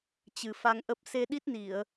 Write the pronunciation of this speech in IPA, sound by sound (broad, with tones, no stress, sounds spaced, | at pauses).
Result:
t͡ɕ ɨ˨˩ f a˧ ŋ ʔ ə˦˥ p̚ s e˧ ɗ i˦˥ t̚ n i˧˩˨ ə̯